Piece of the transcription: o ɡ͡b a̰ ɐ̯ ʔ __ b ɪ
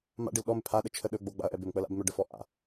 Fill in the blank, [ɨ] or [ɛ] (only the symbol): ɛ